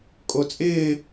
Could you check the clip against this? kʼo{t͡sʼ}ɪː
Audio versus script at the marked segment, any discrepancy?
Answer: no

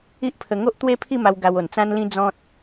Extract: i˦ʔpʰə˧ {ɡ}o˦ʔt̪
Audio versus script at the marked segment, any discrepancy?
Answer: yes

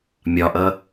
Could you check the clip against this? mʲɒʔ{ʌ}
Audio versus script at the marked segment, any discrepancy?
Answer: no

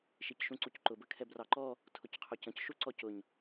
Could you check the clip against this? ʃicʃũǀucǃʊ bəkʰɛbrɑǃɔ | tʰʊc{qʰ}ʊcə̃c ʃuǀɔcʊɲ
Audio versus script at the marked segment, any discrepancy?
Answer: no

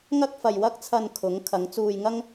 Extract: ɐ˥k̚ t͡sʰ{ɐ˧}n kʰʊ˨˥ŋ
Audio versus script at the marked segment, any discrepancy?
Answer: no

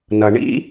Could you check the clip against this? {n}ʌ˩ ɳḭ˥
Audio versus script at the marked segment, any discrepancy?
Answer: no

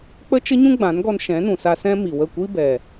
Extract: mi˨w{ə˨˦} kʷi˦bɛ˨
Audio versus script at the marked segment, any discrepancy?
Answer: yes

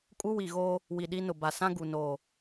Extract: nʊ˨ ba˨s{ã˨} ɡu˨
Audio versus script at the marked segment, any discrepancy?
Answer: yes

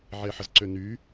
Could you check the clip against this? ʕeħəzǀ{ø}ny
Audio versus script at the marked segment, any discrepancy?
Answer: no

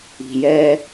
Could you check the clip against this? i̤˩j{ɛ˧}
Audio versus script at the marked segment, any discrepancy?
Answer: yes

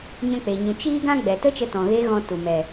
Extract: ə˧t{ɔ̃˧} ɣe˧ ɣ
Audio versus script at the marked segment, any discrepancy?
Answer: yes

